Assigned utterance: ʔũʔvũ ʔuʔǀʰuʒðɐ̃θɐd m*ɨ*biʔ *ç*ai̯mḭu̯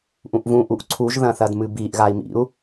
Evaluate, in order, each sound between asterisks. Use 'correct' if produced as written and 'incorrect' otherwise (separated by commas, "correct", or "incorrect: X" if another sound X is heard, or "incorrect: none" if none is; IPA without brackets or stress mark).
correct, incorrect: ɣ